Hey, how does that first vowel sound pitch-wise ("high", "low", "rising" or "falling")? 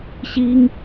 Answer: high